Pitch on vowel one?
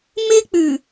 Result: high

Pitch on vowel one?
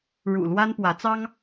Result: low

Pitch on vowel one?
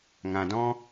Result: low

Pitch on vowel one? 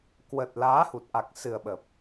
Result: low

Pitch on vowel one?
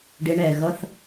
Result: rising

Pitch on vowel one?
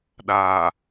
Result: low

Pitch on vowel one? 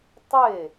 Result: falling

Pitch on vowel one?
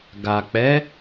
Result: low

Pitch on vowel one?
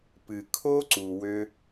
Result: low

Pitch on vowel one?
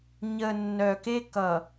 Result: low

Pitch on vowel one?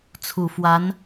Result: low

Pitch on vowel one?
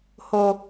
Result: low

